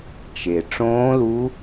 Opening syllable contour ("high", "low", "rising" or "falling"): low